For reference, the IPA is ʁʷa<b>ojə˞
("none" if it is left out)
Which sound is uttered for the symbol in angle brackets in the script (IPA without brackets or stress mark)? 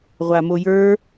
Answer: m